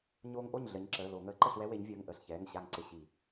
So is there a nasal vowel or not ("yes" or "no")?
no